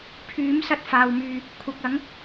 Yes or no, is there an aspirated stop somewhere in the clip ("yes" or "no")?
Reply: yes